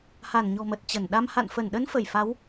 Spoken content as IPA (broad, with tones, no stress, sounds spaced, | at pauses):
h a˧˩ n ɲ ɔ̤˨˩ m ə˨˩ t̚ t͡ɕ ə˧˩ n ɗ a˧ m h a̰˧˨ n f ə˧˩ n ɗ ə˨˦ n f ə˧˩ j f a˨˦ w